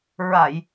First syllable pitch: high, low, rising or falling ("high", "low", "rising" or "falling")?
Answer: low